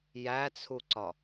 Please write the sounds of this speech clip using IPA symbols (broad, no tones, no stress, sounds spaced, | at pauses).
j æ t͡sʰ u ǀ ɒ